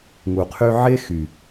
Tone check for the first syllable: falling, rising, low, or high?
low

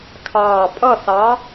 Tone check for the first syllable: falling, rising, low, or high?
low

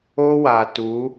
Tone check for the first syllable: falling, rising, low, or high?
high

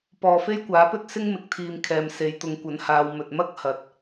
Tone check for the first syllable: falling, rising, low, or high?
low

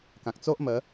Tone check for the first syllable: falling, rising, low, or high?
low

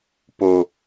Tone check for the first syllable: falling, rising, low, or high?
low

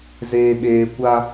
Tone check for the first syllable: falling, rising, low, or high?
low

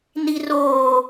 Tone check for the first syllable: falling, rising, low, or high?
low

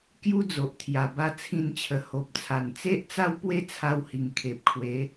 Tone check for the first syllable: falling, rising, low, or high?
high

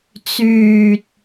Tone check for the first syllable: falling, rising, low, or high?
low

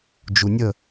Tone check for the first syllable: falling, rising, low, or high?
low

